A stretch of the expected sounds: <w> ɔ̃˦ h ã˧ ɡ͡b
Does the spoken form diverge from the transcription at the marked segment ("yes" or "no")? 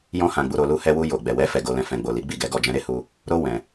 yes